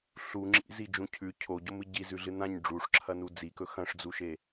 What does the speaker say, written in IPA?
ɬ u ŋ͡ǁ ḭ z i d͡ʒ ũ cʰ ʉ cʰ o ɟ o m ɨ ɟ i z ʉ ɮ ɨ n ã ɲ ɖ͡ʐ u ʂ ǁʰ ɐ n u d͡z i k ɵ x ɐ̃ ʂ d͡z u ʃ e

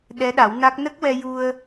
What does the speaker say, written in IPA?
ɗ ɛ˧˥ ɗ a˨˩˦ w n a˦˥ k̚ n ə˦˥ k̚ w ɛ˧ j u˧ ə̯

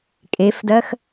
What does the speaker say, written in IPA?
kʼ e f d ɜ x

